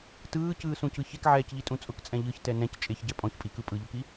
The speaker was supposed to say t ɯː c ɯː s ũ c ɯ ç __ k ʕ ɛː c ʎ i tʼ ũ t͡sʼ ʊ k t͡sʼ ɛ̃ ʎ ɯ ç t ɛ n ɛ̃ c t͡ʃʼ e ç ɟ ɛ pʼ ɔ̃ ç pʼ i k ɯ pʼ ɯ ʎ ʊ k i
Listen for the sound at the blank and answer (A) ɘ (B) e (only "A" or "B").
B